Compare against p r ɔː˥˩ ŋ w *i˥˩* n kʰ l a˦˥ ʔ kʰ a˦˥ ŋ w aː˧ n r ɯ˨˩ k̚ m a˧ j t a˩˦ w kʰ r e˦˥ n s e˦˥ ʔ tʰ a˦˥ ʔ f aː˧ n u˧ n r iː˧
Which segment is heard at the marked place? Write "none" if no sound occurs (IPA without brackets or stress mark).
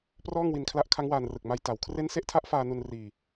i˧